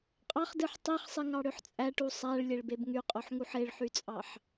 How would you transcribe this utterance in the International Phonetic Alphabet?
qʼɑχdɯħ tˤiχsˤiŋɑɽøħ t͡sʼæʈu sˤæɭlʲeɭbeb ŋyqʼoħŋuħ eɭħyt͡sʼɑħ

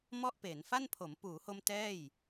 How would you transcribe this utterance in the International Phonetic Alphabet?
mɔ˥˩ʔpeː˩˦n fa˥˩npʰo˩˦m puː˩˦ho˧m tɛː˥˩j

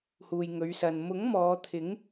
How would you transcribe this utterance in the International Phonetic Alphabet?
huː˨jŋɵ˨˧ɥsɐ˨n mʊ˨˥ŋ mɔː˨˧t̪ʰɪ˨˥ŋ

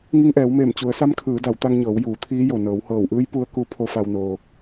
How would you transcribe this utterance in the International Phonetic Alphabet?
ŋi˧ŋʔɛː˩˧wmeː˧˩m t͡ɕu˩˧ə̯sa˧˥mkʰɯː˩˧ da˩˧wt̪a˧ŋɲɤː˩˧w juː˩˧t̪ʰiː˧˥ jo˩nɤː˩˧whɤː˧˩wʔɯː˧˥j pu˧˥ə̯ku˧˥ pʰo˧˥fa˧wnoː˧

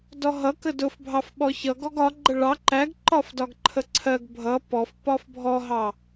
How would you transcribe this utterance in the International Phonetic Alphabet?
dɔɦʌ kədʊfbʱɑf ɓɔçʌ ɡɔɡɒ ɡ͡ǃəɭɑ ǃæɡ ǃɒfdɒɡǃʰəǀʰɜɡ bʱʌ pɔf pɒfbʱɔɦɑ

